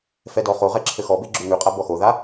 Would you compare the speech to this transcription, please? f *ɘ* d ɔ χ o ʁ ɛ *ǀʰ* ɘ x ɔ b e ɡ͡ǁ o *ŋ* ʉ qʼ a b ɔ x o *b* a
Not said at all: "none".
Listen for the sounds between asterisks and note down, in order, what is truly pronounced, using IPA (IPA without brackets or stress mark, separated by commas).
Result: ɛ, ǁʰ, ŋ, ð